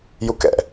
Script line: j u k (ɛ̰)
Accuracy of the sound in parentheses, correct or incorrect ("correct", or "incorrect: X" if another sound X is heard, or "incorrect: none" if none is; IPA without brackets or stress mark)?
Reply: correct